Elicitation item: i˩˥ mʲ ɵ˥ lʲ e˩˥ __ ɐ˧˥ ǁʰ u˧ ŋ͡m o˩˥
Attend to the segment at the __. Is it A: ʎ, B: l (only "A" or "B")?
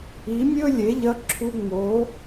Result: A